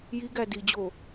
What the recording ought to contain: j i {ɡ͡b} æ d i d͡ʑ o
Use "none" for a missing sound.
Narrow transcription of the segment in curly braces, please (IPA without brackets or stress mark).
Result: ɡ